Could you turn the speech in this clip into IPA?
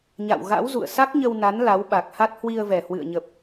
ɲ a̰˧˨ w ɣ a̰˧˥ w z ṵ˧˨ ə̯ s a˦˥ k̚ ɲ ə˧ w n a˨˦ n l a˨˦ w ɓ a˨˩ k̚ h a˦˥ t̚ h w i˧ ə̯ v ɛ˨˩ h w ɨ̰˧˨ ə̯ ɲ ə˨˩ p̚

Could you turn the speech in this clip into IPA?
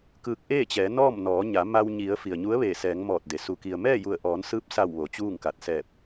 k ɯː˧ k̚ ʔ eː˥˨ t͡ɕ ɛː˩˧ n ɔː˥˨ m n ɔː˩˧ ɲ a˩˧ m a˧ w ɲ i˩˧ ə̯ f i˩ ə̯ ɲ u˧˥ ə̯ ʋ eː˧˩ s ɛː˩˧ ŋ m ɔː˧˩ t̚ d e˩ s u˩ k i˩ ə̯ m ɛː˥˨ j u˧˩ ə̯ ʔ ɔː˩˧ n s ɯː˧˥ p̚ s a˧˩ w ʋ o˩˧ t͡ɕ uː˥˨ ŋ k a˧˩ t̚ s ɛː˧˩ p̚

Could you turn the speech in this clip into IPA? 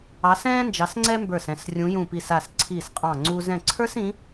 ɑ˨˦ s ɛ̃ː˦ n d͡ʒ ɑ˨˦ s ŋ͡ǀ ɛ˦ m b ə˞˧˩ s ɛ̃˧˩ s rʲ ũ˨˦ j ũ˧˩ p i˧˩ s a˧˩ s ǀʰ i˧˩ s qʼ ɑ̃˧˩ ŋ͡ǀ u˦ z ɛ̃˧˩ ǀʰ ə˞˦ s ĩ˨˦

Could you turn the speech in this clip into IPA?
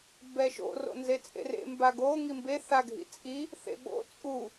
b ɛ ʃ o̰ r o̰ n z e t͡sʼ ḛ r ḛ m b a ɡ o ŋ i m b e θ a ɡʱ ḭ t͡sʼ i | θ ḛ ɓ o̰ t͡sʼ u

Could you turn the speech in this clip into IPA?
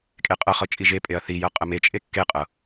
kʼ e qʼ ɤ χ ɤ t͡ʃʼ i ʒ e pʼ e ɐ̯ θ i j ɤ qʼ ə m e t͡ʃʼ e kː e qʼ ɤ

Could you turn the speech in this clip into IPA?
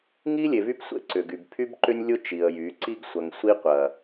ŋ i˦ lʲ e˨ v y˦ p sʷ ḛ˦ ǀ ʏ˨ ɡ y˨ b pʰ y˦ b ǃ ʏ˦ nʲ lʲ ʊ˦ t͡ʃ i˨ ə̯ j y˨˦ ǀ i˦ ɡ sʷ ɐ˨ ŋ sʷ i˦ qʷ ɐ˨

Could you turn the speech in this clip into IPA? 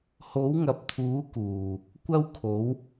h o˨˥ w ŋ ɐ˨ p̚ t̪ʰ uː˨˥ k uː˨˩ | kʷ ɐ˥ w kʰ o˨˥ w

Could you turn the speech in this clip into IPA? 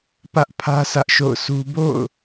p ä˦ ʔ pʰ ä˦ s ä˦ ʔ ʃ o̰˦˨ ʊ̯ sʰ u˦ b o̰˦˨ ʊ̯

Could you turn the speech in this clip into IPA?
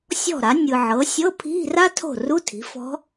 sʲ ɔ̤˥˩ ɾ a˩˥ nʲ ɯ˨ ʕ ɤ˩˥ sʲ ɤ˧˥˧ pʰ i̤˧˥˧ r a˥ tʰ o̤˥˩ r u˧˥˧ tʰ i̤˩˥ f ɔ̤˧˥

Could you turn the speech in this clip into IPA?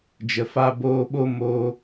d͡ʒ ə˨ f aː˧ b oː˧ ɓ o˦ m o˦

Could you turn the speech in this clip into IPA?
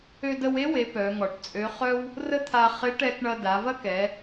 ø˧ d ə˧ w e˧˥ w e˩˧ p œ˩˧ ŋ ɔ˩ ʈ t͡sʼ ø˧˥ χ œ˥ w | r ə˥ t̪ʰ a˧ χ ɪ˧˥ ʈ ɛ˧ k ɳ ɐ˧ d a˩˧ v ɐ˥ k ɛ˩˧

